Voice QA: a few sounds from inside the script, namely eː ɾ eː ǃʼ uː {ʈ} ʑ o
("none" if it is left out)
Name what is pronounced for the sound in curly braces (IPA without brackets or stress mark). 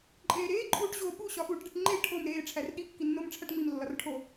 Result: ʈ